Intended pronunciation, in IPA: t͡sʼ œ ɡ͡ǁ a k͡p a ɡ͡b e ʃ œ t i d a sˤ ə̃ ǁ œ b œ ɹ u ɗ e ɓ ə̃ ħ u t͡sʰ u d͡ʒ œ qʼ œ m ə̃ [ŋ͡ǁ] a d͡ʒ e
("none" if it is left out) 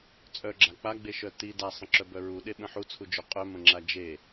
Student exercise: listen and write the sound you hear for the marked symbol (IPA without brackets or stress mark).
ŋ͡ǁ